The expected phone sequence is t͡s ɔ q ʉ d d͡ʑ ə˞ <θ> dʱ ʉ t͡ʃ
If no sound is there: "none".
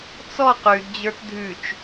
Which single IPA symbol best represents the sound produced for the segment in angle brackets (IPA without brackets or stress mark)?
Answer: t